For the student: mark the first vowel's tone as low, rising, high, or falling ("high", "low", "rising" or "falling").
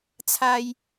low